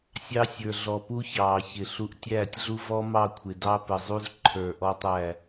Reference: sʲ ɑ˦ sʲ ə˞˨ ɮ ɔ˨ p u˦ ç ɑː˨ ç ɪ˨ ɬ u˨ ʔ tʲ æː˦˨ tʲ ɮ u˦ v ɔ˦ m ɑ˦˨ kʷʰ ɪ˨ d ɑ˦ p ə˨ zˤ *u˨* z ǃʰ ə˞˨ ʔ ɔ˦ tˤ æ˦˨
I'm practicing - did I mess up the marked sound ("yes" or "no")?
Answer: yes